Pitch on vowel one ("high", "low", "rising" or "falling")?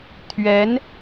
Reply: rising